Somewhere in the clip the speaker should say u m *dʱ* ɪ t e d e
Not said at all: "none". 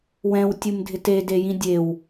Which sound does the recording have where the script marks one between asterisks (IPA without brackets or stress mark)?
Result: dʱ